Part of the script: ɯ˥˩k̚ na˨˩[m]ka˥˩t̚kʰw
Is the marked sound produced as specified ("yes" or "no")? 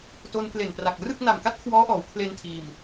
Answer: yes